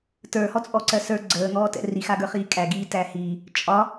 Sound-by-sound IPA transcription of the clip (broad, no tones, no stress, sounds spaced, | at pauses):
t ə˞ h ɔ t͡sʼ ɔ ǀ ɜ s ə˞ ɡ͡ǀ əː ŋ ɔː t ɛ̰ r i x a ɡ ə˞ χ iː kʼ æ ɡ iː t æ h iː | t͡ʃʼ ɒ